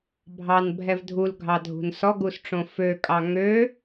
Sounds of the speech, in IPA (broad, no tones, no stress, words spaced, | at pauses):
bʱɑnbʱɛv dʱulɡʱɑdʱṳn sɔɡusʈ͡ʂõ føkʼɑ ŋø